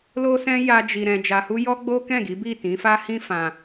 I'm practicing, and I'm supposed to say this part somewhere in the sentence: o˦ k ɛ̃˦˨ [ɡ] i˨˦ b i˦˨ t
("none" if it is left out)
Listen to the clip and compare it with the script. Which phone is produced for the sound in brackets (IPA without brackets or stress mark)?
ɡ